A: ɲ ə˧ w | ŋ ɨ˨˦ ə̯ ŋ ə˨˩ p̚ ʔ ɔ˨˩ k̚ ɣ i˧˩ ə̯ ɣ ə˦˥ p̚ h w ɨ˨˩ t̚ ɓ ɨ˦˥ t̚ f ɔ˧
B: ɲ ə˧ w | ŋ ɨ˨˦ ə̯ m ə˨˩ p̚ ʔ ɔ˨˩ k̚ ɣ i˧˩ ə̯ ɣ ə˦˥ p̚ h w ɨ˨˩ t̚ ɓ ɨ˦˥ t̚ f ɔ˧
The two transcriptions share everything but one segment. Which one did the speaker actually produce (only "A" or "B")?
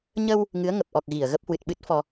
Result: A